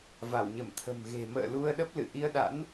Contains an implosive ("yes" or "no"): yes